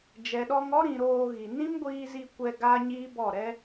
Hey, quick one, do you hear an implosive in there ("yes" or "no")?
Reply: yes